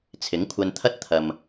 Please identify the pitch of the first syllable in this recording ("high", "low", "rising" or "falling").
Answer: rising